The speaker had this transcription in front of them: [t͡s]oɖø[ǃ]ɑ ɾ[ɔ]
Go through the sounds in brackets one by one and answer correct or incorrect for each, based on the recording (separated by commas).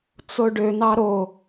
correct, incorrect, incorrect